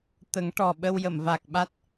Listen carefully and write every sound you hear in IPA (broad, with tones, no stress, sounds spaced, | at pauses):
t̪ ə˨˩˦ ŋ ʈ ɔ˨˩ ɓ ə˧ w j ə˨˩˨ m v a˨˩ k̚ ɓ a˦˥ t̚